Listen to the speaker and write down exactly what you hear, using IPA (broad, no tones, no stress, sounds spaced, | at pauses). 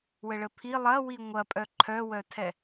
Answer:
w ə ɭ ə pʰ i lˠ ɐ w i ŋʷ ɐ pʼ œ ǃʰ œ w œ tʰ ɛ